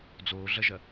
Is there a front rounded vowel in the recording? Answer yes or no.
no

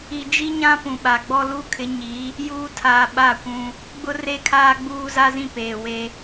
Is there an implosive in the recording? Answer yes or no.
yes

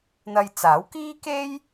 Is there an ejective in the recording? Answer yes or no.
no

